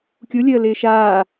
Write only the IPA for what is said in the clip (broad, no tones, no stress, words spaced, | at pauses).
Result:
kʲulʲəːlɪː ʃaː